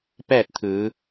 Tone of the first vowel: falling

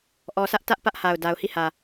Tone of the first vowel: low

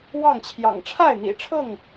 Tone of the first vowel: falling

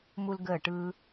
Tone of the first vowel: high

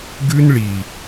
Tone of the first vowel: high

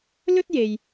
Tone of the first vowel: high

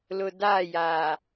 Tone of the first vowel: low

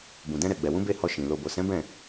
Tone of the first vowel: low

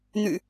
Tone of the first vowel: low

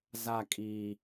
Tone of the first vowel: falling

